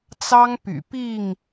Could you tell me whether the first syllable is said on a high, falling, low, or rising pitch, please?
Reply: high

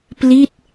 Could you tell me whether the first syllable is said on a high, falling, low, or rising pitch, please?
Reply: falling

